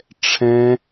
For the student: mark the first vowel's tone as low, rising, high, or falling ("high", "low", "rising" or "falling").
high